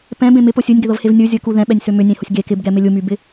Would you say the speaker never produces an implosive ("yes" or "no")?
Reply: no